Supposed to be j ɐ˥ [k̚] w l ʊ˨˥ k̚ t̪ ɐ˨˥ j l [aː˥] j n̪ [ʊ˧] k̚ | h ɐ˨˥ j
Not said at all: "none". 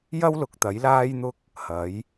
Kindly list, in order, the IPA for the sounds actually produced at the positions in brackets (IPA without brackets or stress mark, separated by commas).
none, aː˥, ʊ˥